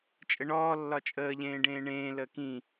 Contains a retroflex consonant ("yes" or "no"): yes